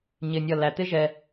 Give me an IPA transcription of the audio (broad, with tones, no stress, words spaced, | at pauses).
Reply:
ɲɪ˧nʲʌ˦˨læ˧ t̪ɪ˦ʒɛ˧